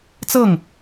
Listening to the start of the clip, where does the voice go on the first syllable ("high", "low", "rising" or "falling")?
falling